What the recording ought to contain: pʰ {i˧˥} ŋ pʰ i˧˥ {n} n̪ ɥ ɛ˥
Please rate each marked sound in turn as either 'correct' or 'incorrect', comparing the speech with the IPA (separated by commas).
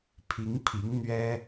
correct, incorrect